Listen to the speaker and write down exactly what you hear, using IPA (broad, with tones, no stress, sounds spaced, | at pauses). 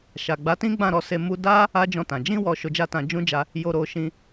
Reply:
ʃ a˨ ɡ͡b a˨˦ t ĩ˦ ɡ͡b ã˦˨ ɾ ɔ˧ s e˧ m u˧ d a˦ | a˦ d͡ʒ ɔ̃˧ t ã˨ d͡ʒ ĩ˧ w ɔ˨ ʃ o˧ d͡ʒ a˦ t ã˧ d͡ʒ ũ˦ d͡ʒ a˧ | j o˧ ɾ o˧ ʃ ĩ˧